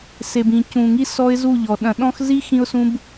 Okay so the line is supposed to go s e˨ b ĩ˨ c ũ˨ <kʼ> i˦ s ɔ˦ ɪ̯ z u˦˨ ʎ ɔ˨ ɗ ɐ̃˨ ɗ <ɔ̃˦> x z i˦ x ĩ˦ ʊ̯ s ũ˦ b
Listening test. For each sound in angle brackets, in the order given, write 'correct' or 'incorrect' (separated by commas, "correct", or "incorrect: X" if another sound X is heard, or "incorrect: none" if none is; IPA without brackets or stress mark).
incorrect: ŋ, correct